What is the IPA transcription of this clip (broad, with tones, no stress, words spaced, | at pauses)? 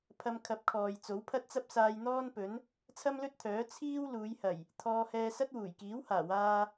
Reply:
pʰɐ˧mkʰɐ˨˥p̚kʰɔː˨j t͡so˨˥wpʰɐ˥t̚t͡sɐ˥p̚ saː˧j n̪ɔː˥npɵ˨˥n | t͡sʰɐ˥mlɵ˥t̚t̪ʰœː˨˥ t͡sʰiː˥w luː˨˧jhɐ˨˩j | t̪ʰɔː˧hɛː˧sɐ˥t̚ wuː˨˩jkiː˨˥w haː˨˩waː˧